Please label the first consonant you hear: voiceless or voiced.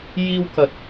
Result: voiced